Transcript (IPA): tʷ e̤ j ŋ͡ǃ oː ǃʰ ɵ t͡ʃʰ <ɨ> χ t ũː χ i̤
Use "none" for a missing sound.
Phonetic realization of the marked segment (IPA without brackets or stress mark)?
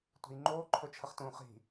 ə